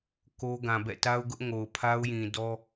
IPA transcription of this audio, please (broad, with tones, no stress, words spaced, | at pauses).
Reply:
ko˦ɡã˨ bɛ̰˦˨ta˦ʊ̯ɡʊ˦ʔ ŋo˨ʊ̯pʰa˦ʊ̯jĩ˨ dɔ˦